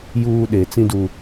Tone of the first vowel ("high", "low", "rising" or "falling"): high